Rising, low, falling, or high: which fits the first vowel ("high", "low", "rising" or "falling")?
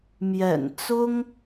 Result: low